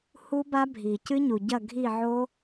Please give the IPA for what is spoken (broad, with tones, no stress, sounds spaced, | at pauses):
h u˦˥ b a˦˥ bʱ i˩ c ɨ˦˥ ɲ u˩ ɟ ɐ˦˨ ɡʱ i˦˨ ʕ o˦˥